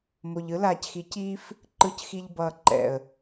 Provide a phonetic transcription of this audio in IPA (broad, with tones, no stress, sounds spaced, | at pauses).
m o˨ ʎ ɯ˦ l aː˨ c x i˨˦ c iː˦ f | ǃ ɯ˨ c x i˨ ʎ b ʌː˨ ǃ ɛ̰˨ ə̯